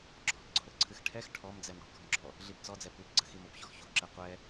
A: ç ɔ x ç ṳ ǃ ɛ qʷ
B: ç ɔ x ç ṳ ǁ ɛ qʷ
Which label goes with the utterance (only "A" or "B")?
B